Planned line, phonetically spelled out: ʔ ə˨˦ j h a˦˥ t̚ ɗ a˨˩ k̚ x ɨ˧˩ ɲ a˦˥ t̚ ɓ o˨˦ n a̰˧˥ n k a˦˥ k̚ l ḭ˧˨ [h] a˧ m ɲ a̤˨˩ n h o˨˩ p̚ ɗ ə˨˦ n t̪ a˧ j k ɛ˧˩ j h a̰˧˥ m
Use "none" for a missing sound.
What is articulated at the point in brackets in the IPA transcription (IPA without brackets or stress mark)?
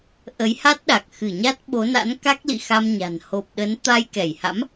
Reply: x